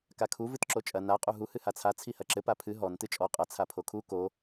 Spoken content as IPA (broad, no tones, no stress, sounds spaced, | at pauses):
k a kʰ u v ɨ t ǁ o t͡ʃʼ ɐ n a qʼ u ɦ u h ɨ h a t͡sʰ a t͡sʰ i h ɐ ǁ ɘ p a pʰ ɨ ɦ ɔ n t ɨ t͡ʃʼ ɔ qʼ ɐ t͡sʰ a pʰ o kʰ u k o